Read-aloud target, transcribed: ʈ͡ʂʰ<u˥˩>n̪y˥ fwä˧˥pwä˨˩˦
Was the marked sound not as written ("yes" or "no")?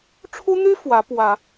yes